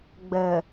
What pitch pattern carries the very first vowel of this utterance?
low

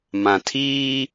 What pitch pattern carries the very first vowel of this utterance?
low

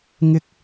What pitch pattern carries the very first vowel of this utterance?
high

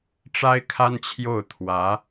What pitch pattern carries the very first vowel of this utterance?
high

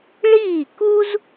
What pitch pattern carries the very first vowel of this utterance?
falling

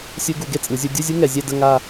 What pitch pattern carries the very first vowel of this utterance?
high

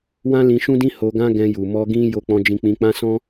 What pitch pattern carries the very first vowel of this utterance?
high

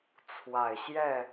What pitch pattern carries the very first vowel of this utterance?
low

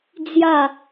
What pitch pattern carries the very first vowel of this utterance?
falling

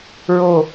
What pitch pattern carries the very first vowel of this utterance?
low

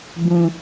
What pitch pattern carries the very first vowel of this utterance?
low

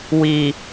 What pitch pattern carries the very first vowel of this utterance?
low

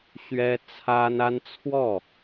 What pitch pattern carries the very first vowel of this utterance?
high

